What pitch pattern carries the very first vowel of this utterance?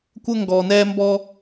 high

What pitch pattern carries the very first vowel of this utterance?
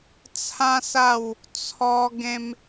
high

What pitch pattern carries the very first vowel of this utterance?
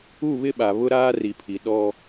falling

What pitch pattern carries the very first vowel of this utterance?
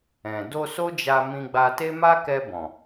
low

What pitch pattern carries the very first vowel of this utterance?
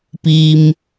low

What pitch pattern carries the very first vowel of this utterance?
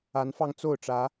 rising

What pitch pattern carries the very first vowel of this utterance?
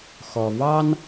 low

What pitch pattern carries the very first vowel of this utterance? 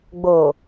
low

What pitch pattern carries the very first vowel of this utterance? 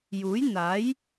rising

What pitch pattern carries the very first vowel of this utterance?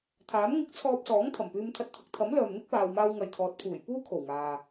rising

